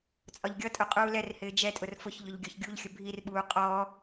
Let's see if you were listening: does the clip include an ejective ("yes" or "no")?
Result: yes